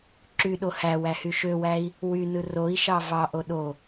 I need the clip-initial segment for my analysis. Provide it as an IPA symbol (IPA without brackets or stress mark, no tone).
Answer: ǁ